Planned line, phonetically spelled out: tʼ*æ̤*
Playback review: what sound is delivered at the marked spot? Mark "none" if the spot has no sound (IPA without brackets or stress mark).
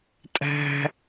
æ̤